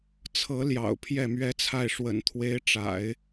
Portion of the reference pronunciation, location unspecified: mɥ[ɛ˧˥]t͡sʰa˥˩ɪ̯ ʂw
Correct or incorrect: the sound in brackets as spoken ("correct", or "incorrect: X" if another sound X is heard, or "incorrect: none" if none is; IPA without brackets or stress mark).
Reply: incorrect: ɛ˥